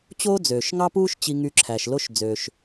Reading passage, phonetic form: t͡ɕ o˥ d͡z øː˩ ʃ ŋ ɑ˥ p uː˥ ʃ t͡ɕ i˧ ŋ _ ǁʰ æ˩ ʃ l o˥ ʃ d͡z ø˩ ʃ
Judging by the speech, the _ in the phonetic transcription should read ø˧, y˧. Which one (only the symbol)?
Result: y˧